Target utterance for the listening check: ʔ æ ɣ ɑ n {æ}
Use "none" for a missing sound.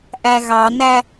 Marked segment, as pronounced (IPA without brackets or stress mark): æ